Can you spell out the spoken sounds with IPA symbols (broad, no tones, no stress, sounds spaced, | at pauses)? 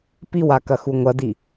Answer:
p i w a k ɐ x u ŋʷ ɐ d i